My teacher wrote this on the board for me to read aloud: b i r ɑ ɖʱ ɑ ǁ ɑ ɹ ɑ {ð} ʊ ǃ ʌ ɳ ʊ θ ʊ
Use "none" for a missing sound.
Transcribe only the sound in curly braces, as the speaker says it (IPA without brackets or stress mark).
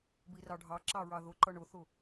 ð